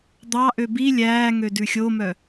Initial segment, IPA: d̪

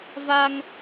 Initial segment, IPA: v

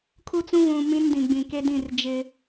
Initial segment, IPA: kʰ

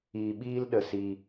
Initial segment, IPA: iː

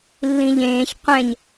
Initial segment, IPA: lː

